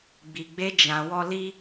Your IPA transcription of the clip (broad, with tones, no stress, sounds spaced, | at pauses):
ɡ͡b i˨ ɡ͡b e˧ d͡ʒ ã˧ w ɔ˦ l i˦